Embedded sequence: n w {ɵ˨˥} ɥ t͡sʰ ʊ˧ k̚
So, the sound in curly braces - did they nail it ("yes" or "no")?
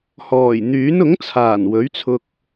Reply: yes